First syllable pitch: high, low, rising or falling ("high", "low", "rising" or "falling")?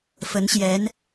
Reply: rising